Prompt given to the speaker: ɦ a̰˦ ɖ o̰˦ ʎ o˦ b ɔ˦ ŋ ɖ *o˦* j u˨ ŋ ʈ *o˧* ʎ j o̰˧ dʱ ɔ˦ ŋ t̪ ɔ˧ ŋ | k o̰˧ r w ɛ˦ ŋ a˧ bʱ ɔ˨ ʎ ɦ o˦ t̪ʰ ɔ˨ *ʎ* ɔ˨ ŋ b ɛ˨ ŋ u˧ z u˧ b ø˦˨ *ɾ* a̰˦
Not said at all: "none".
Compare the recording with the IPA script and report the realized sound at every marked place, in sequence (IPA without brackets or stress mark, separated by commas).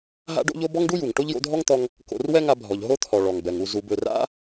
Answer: u˦, o˦, ɭ, r